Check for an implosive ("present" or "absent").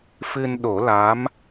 present